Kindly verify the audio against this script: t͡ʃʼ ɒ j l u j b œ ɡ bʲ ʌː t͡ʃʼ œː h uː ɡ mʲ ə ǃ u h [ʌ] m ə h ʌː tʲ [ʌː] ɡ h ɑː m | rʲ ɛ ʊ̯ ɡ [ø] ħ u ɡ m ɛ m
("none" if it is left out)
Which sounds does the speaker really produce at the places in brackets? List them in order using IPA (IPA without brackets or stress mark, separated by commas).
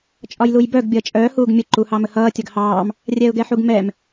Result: ɑ, ʌ, ɛ